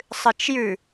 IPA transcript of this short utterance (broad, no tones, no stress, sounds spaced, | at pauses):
sˤ ɨ t͡ʃ j ʉ